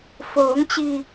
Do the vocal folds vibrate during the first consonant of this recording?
no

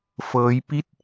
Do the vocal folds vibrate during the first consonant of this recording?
no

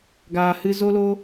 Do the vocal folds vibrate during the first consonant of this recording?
yes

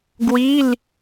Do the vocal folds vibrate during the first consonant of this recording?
yes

